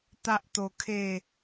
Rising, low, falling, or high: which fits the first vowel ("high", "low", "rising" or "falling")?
high